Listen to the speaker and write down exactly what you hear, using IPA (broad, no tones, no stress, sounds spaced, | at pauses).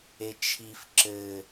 e t͡ʃʰ i f ǁ ɘ